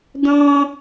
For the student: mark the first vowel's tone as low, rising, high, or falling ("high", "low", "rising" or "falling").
high